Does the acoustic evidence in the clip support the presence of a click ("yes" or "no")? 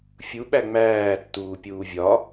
no